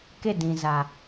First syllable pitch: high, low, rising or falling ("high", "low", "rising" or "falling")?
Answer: falling